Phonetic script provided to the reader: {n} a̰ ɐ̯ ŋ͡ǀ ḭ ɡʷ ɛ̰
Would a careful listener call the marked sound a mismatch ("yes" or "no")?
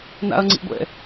no